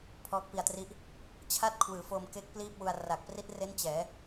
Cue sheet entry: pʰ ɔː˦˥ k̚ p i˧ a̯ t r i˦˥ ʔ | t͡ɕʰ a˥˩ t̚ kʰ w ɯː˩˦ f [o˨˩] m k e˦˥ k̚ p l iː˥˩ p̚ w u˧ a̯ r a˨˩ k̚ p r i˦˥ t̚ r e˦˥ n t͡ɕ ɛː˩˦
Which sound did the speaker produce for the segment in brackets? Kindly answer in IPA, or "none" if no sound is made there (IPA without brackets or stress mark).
o˧